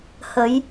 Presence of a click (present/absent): absent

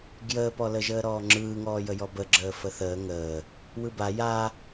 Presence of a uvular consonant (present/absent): absent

